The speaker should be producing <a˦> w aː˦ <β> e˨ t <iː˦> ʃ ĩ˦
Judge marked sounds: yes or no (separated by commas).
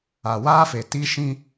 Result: no, no, no